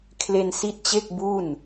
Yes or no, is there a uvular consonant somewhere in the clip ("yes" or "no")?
no